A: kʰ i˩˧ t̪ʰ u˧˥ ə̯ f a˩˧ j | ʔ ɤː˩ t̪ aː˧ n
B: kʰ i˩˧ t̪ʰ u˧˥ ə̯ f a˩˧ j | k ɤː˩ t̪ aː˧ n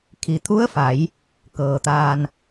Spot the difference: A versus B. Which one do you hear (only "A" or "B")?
B